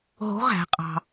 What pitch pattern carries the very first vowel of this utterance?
rising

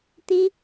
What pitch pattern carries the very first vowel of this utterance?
high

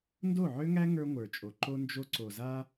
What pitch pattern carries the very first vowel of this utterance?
falling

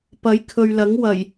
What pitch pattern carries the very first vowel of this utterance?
rising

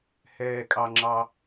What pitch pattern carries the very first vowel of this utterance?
low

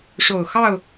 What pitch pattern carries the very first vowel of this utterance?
low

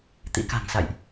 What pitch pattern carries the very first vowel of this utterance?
rising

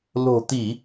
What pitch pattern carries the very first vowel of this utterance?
low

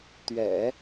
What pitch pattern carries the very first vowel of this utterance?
low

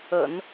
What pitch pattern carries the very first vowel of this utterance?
low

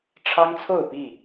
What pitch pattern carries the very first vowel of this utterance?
high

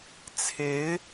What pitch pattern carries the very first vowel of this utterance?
rising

